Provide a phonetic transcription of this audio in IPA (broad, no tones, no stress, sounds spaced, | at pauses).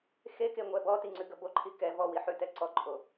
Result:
x e k e ŋʷ ɛ b ɔ t i ŋ͡ǀ ʉ ɡ ə b o ǃʰ i k ɛ v ɔ w i ħ ʉ t ɛ ǀ ɔ ǃʼ o